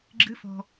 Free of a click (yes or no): no